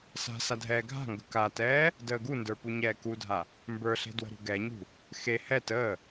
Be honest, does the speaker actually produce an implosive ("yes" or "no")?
no